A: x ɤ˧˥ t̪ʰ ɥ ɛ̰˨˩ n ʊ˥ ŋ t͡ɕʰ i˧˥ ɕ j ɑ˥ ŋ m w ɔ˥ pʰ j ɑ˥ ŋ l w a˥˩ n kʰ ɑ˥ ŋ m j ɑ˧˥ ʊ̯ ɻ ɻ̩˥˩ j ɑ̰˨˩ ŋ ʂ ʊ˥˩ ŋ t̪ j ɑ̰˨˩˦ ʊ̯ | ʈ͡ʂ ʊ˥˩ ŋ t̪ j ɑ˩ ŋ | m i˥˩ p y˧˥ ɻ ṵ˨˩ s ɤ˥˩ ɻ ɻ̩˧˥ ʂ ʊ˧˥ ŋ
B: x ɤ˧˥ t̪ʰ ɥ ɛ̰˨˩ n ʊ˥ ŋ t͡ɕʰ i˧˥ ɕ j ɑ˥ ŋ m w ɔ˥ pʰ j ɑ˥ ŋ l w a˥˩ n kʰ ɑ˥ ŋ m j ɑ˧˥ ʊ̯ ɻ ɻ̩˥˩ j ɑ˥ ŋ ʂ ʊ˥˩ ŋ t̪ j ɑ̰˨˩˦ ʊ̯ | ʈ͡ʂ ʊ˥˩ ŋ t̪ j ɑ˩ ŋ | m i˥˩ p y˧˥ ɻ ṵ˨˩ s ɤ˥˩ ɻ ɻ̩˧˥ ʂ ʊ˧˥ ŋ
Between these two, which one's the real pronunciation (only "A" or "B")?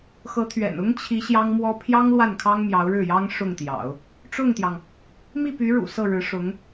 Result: B